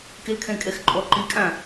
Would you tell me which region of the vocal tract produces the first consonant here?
velum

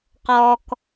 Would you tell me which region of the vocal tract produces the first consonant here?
uvula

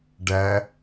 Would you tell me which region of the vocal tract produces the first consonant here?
retroflex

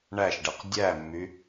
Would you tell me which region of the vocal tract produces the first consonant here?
retroflex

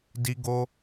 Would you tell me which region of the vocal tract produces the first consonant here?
tongue tip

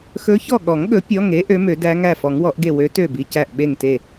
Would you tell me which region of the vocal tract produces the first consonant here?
velum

